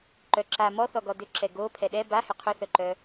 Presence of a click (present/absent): present